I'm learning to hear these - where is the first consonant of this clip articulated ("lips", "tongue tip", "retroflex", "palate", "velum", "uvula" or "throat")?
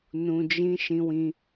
tongue tip